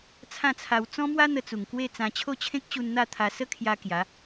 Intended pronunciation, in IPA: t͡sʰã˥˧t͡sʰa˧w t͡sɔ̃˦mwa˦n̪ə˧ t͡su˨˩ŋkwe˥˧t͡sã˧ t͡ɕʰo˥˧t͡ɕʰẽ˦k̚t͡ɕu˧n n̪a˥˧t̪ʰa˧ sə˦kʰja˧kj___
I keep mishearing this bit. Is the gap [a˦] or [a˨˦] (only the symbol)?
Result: a˨˦